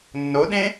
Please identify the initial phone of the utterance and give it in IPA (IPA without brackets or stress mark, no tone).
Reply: nː